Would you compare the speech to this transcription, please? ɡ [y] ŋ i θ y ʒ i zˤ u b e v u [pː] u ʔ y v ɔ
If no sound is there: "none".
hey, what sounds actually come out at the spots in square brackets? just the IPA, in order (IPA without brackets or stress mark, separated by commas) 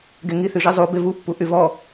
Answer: e, pː